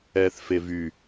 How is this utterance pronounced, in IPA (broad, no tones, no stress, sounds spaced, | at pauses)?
ɛː θ f e v y